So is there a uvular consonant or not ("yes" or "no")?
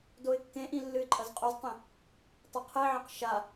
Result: yes